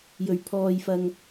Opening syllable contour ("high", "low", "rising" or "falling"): low